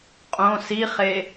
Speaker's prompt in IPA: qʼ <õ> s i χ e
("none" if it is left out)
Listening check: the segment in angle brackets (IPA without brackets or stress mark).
õ